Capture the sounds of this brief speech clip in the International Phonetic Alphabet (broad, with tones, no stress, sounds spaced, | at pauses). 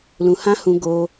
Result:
l ũ˧ h ã˦ h ũ˧ ɡ o˧